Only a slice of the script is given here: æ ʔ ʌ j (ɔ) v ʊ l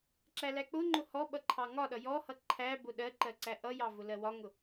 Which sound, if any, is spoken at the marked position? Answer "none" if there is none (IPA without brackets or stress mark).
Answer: ɑ